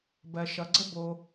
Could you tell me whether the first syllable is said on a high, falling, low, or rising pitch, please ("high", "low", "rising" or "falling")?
low